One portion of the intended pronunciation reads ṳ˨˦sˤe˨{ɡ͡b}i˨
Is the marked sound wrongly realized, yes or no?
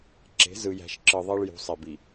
yes